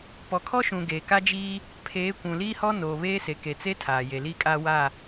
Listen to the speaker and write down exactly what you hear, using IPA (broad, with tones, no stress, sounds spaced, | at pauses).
p ɔ˨ kʰ ɔ˦ ʃ ũ˨ ɡ eː˨ k a˦ d͡ʒ iː˦ | pʰ eː˨˦ kʷ ũ˨ l iː˦ h ɔ˦ n oː˨ β eː˦ s e˨ k e˨ t͡s e˦ tʰ aː˨ j e˨ l iː˦ kʼ aː˦ w a˦˨